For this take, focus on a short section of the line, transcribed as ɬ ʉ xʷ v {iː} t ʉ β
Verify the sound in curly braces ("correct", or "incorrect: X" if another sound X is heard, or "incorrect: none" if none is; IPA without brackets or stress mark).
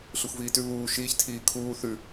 correct